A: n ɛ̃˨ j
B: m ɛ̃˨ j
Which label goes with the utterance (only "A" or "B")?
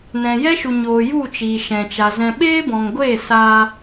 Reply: A